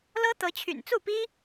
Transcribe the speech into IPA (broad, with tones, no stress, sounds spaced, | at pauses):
l ɤ˦ t̪ ɤ˨˦ t͡ɕʰ y̰˨˩ n t͡s u˥˨ p i˦